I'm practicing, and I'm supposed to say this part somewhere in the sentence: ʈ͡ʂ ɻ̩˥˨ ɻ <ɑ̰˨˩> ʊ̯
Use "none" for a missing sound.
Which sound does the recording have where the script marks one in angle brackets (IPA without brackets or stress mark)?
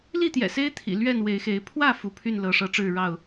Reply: ɑ˥˨